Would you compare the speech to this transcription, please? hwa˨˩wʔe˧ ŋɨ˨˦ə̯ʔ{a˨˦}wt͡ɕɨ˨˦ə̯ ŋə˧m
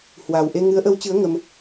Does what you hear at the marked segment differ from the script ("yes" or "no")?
yes